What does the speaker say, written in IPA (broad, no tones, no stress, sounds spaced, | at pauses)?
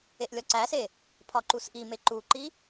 e ʔ lʲ ɒ ǀ æ s e | pʰ ɒ ǃ u s ʔ i m e ǃ u ǃ i